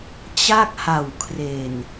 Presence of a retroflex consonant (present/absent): absent